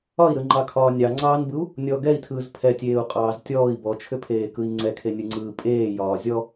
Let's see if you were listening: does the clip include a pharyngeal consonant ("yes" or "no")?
no